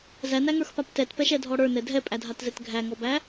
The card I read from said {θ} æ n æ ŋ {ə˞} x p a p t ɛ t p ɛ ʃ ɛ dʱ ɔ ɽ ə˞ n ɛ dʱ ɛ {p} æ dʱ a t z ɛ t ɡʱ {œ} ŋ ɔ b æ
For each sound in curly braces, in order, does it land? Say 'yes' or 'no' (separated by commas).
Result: no, yes, no, no